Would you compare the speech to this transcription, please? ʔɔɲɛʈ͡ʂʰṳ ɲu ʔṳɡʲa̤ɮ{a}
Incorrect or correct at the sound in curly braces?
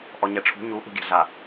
correct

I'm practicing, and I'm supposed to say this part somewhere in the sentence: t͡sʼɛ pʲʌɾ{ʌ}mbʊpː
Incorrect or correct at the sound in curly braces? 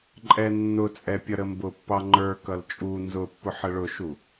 incorrect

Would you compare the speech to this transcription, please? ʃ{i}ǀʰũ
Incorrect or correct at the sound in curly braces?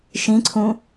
incorrect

